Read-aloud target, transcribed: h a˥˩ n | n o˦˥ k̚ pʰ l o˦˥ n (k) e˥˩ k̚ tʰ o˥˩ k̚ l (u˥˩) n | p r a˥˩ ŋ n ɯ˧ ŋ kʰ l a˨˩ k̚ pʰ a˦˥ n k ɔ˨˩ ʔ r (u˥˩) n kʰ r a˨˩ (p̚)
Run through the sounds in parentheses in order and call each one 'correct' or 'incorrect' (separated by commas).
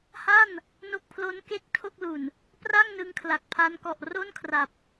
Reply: correct, incorrect, incorrect, correct